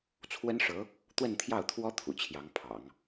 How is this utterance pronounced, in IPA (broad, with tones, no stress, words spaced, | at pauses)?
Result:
t͡sʰwə˥nʂɤ˧˥ | t̪wə˥˧nt̪ʰjɑ˥˩ʊ̯t̪ʰwɔ˥ t̪ʰṵ˨˩ t͡ɕʰjɑ˧˥ŋpʰɑ̰˨˩˦ŋ